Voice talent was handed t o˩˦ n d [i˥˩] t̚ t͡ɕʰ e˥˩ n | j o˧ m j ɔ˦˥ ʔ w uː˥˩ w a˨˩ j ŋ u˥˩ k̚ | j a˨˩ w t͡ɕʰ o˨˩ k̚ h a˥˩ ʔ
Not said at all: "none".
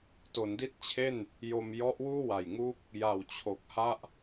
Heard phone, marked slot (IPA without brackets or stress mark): i˥˩